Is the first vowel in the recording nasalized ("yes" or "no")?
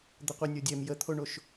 no